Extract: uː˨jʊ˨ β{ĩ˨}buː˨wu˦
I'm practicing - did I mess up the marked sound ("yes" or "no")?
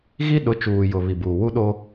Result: yes